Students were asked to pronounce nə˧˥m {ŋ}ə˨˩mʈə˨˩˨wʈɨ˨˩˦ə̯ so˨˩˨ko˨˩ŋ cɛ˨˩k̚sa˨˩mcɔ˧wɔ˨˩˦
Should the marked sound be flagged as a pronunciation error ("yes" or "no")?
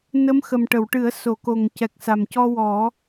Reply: yes